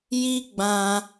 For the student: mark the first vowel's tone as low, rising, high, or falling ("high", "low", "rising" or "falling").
high